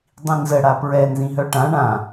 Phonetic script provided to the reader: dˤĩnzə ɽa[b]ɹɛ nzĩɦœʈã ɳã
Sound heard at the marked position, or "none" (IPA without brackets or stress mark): p